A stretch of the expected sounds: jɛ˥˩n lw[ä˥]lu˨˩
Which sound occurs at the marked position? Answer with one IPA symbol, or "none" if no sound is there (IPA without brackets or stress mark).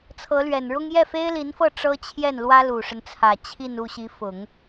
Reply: ä˥